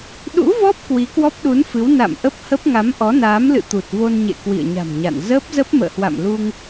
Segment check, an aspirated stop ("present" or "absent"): absent